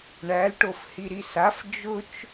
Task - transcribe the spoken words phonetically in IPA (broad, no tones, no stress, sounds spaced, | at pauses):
ɳ æ l ʈ o f h i ɾ i s a f d͡ʒ ʊ t͡ʃ